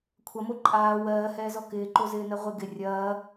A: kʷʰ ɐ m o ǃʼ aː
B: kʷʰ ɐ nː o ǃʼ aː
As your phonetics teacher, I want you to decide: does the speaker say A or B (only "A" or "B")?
A